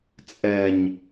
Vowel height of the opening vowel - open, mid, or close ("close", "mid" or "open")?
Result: mid